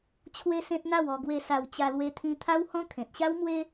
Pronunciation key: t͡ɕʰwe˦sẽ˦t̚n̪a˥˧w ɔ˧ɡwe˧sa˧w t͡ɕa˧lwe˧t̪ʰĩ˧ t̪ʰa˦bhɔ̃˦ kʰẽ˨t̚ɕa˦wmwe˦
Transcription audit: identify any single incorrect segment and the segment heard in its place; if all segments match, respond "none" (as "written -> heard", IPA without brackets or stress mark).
b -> w